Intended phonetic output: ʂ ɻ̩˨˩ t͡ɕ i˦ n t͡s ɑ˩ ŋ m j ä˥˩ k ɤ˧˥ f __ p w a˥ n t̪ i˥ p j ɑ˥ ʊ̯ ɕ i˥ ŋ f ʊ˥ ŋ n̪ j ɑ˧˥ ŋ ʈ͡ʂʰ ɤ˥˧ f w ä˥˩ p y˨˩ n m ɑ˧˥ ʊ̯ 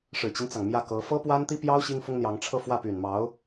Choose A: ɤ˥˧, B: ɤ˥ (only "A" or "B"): B